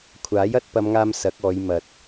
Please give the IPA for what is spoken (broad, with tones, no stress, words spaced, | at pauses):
kʷʰaː˨˥j ɐ˨˥t̚pɐ˨˧mŋaː˧m sɐ˨˥k̚ɔː˨˧j mɐ˨t̚